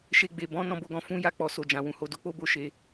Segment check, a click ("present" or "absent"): absent